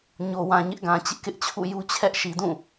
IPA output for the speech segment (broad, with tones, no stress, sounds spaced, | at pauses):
ɲ o˨ w ã˨ ɲ ɪ˦ ʔ ɡ ã˨ t͡ɕ ɪ˦ ʔ k ɪ˦ ʔ t͡ɕʰ ṵ˦˨ j u˦ t͡ɕʰ ɛ˦ ʔ ʃ i˨ d ũ˦˨